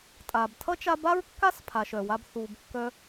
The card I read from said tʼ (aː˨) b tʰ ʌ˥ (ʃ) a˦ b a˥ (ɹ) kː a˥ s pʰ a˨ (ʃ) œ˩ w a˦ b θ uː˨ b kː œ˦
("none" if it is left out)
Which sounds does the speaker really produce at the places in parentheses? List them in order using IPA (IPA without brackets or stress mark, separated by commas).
aː˩, t͡ʃ, ɹ, ʃ